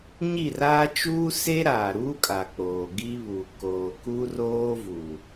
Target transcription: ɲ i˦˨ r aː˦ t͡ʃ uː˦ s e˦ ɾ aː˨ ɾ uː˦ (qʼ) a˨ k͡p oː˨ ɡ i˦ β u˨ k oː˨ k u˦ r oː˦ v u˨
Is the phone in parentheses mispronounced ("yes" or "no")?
yes